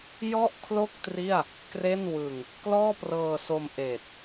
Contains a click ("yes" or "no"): no